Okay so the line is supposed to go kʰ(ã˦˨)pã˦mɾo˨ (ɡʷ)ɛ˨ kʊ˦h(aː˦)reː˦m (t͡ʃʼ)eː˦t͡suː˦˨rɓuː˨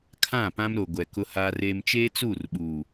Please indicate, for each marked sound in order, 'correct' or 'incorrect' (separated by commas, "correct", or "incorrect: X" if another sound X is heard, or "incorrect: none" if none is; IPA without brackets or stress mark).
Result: correct, correct, correct, incorrect: t͡ʃ